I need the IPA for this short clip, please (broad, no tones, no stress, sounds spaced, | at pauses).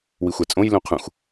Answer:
w i xʷ æ t͡sʼ õ j l ũ qʰ ũ x